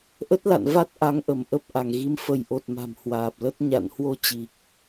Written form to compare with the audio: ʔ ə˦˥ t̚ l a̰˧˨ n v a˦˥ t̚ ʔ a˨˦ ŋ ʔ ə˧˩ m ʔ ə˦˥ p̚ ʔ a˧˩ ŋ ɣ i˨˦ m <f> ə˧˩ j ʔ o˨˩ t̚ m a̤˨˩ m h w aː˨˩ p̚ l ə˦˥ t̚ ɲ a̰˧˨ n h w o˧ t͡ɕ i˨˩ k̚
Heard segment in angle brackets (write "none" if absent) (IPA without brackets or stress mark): f